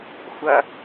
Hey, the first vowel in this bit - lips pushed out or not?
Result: no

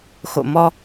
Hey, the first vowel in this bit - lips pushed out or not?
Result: yes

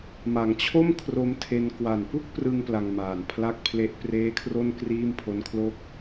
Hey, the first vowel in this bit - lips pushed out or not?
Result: no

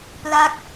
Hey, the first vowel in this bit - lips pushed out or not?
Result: no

